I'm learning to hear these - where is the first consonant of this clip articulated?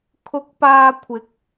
velum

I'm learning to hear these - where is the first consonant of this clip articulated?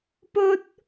lips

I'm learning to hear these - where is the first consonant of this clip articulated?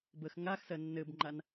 lips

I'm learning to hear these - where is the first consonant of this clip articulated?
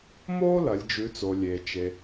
lips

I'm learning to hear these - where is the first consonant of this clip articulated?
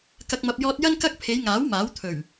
velum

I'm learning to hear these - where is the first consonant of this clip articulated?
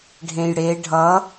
retroflex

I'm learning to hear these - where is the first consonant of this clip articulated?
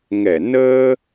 velum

